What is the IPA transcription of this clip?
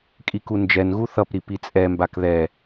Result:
kʼ i k u n d͡ʒ ɛ n ɣ u θ ʌ p ɾ i p i t͡sʼ ɛ m b a k ð ɛ

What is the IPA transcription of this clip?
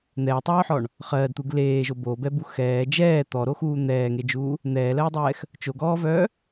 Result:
n̪ ɛː tˤ œː ħ ɔ ɳ | χ ɜː d t̪ u ɡ l eː ʒ o b o b ɛ b u x ɛː d͡ʒ ɛː t̪ ɔ ɾ o x uː n̪ ɛː ŋ e d͡ʒ uː | n̪ ɛː l ɜː dˤ ɛː x | t͡ʃ o ɡ ɔː v œː

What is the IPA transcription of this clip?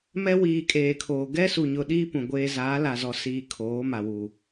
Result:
m ɛ˦ w iː˨ kʼ eː˨ kʰ oː˨ ɡ ɛ˦ s u˨ ɲ ʊ˨ ɗ iː˦ p ũ˨ ɡʷ eː˦ z aː˨˦ l a˨ z ɔ˨ s iː˨ kʰ oː˨˦ m a˨ w u˨

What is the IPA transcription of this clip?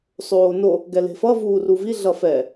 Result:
sˤ oː n o | ɡ ɛ l e̤ f ʌ v uː r u v i ɮ ʌ f ɛ

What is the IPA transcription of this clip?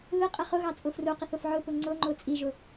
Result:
β ɪ qʼ ɪ χ ʊ ɣ ɑ t͡sʼ ʊ f r u q ɪ θ ʊ f ʕ ʊ p ʊ ŋ͡ǀ ʊ ŋ͡ǃ ʊ t͡sʼ i ʒ ʊ

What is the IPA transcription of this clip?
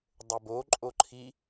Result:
dˤ ø b o ǃʼ o ǃʰ i

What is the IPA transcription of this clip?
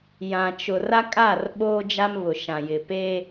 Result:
j ã˨ t͡ʃ ʊ˨ r a˦ kʼ a˦˨ r ɓ oː˦ d͡ʒ a˦ m β ʊ˨ ʃ ã˨ j ɪ˨ p e˦

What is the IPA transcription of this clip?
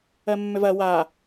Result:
ɜ mː ʏ v ɐ w a

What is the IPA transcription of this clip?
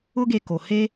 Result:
ʊ˦ ɡ e˧ k o˨ h e˦

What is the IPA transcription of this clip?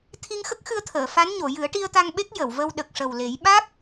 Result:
t̪ʰ i˧ ŋ x ə˦˥ k̚ x ɨ˧ ə̯ t̪ʰ əː˨˩˨ f a˧˥ n ɲ o˨˩˨ j ɨ˨˩˦ ə̯ ʈ i˧ ə̯ t̪ a˧ ŋ ɓ e˦˥ k̚ j ə˨˩˨ w v ə˧ w ɗ ə˨˩ k̚ ʂ ə˨˩ w l e˨˩˦ j ɓ a˦˥ k̚

